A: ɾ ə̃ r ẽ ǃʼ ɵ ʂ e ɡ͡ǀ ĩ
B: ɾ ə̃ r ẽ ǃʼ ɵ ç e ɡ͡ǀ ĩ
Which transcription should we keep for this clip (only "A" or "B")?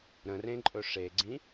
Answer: A